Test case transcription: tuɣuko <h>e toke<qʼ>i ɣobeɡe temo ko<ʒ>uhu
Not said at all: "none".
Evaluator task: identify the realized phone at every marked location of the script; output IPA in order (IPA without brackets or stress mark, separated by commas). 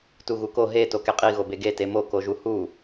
ɦ, qʼ, ʒ